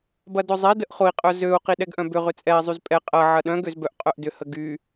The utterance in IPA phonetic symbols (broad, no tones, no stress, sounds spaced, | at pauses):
b ɐ d ʊ zˤ e d ə ʔ χ ʊ i̯ qʼ œ z ø u̯ q i ɗ ɛ ɡ ʔ œ̃ b ʏ ʁ ʏ t͡sʼ ɛ i̯ zˤ y z pʼ ɛ qʼ ɐ ʕ ɐ ɗ œ̃ ɡ ø z b œ ʔ qʼ œ ʔ d ʏ h ə ɡ y